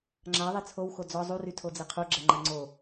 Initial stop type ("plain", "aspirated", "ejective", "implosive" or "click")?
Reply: click